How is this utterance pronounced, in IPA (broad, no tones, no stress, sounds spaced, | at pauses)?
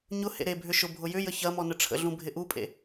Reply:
ɲ ʊ h ḛ ɾ e bʱ ʏ ʃ ʊ bʱ ʊ j ʏ j ə ç ɐ m ɔ n ə ʈ͡ʂʰ ə̰ ɮ ũ bʱ ɪ ʔ u pʼ ḛ